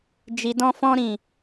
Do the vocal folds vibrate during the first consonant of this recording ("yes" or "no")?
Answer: yes